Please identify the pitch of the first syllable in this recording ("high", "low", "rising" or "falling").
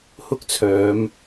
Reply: high